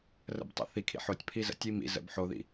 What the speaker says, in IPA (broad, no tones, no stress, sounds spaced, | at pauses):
r ə̰ b tˤ ḭ θ i kʰ ḭ ħ o tʲ pʰ i z ə̰ tʲ i m ḭ z ə̰ b ħ o ð ḭ